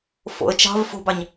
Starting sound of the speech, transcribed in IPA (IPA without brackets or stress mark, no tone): f